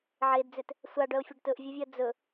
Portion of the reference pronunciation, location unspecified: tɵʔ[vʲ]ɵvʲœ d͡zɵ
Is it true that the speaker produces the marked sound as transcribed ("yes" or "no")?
yes